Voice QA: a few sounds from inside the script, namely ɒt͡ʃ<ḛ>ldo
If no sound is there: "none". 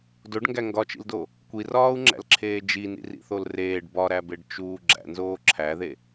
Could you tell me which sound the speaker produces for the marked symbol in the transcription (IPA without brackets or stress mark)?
ḭ